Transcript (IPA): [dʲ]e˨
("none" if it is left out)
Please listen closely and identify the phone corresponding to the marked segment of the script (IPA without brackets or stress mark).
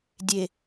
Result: dʲ